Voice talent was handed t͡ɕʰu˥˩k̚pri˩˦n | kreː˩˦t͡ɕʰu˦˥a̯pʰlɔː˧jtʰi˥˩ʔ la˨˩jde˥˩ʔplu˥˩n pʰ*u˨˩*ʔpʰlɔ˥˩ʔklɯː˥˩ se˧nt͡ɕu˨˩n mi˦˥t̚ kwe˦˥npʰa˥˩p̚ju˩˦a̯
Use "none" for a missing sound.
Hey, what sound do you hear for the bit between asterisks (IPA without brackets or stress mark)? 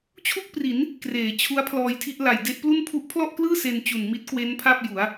u˦˥